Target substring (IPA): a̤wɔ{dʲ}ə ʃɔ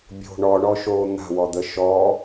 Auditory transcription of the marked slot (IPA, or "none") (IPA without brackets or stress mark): d̪